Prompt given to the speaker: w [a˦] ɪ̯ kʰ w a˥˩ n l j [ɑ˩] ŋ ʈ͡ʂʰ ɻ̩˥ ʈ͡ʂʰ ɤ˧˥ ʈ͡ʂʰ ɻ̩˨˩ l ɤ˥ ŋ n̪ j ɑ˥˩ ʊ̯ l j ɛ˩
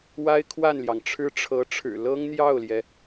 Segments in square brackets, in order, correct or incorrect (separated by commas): incorrect, correct